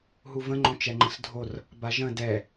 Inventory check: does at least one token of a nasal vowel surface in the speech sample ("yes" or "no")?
yes